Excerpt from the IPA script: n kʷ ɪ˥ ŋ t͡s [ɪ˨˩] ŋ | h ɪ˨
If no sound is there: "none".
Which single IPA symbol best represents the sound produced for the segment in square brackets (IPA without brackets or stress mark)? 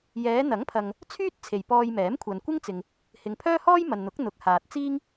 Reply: ɪ˨